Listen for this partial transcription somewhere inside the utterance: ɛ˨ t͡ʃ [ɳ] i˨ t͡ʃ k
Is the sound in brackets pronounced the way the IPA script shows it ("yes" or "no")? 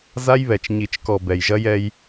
no